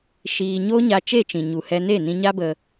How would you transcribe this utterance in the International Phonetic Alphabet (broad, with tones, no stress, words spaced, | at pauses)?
ʃiː˧ ɲoː˦ɲa˧ t͡ʃe˦˨t͡ʃĩ˨ɲu˨hɛ˧ ne˦˨nĩ˧ɲa˦bə˧